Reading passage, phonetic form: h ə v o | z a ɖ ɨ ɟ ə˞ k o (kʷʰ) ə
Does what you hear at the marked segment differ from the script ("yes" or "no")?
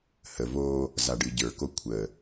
no